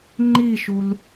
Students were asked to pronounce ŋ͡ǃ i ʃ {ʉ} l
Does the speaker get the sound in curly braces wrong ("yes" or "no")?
yes